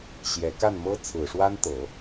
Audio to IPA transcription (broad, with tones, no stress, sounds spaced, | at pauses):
ɕ j ɛ˧˥ k a˥˩ n m ɤ˥ t͡sʰ ɹ̩˨˩ ʂ w a˥ n t̪ ɤ˨˩˦